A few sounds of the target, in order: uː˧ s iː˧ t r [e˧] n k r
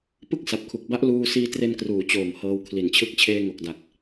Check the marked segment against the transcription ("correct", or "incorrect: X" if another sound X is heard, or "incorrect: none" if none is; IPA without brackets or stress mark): correct